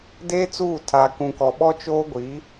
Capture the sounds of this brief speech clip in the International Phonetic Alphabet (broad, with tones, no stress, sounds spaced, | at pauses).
d eː˦ t͡s uː˦˨ tʰ a˨ k ũ˨ k ɔ˨ ɓ ɔ˦ t͡ʃ oː˦ ɡʷ i˨˦